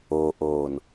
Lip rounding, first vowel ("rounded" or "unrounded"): rounded